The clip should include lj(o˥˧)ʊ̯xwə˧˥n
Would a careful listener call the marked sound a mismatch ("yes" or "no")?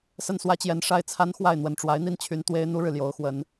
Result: yes